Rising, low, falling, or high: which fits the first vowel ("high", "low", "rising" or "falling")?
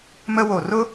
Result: high